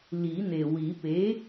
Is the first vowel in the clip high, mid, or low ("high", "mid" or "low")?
high